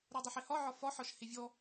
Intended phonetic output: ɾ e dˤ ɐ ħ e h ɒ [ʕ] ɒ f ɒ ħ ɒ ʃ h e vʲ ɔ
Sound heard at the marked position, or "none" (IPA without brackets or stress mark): ʕ